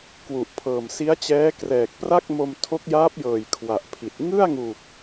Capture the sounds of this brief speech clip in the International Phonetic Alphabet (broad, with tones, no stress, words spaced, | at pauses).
kwu˨˩ʔpʰɤː˨˩m si˦˥a̯t͡ɕɛː˦˥krɛː˨˩k̚ pra˥˩k̚mo˧m tʰo˦˥k̚jaː˦˥p̚jɤː˨˩j kʰwa˨˩ʔpʰi˨˩t̚ ŋɯ˥˩a̯ŋu˨˩k̚